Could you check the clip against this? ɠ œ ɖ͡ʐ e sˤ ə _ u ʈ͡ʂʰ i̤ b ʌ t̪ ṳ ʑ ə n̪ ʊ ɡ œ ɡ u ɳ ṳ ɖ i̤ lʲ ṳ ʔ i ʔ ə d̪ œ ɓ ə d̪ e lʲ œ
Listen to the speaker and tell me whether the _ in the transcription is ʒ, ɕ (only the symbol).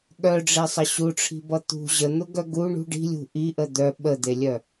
ɕ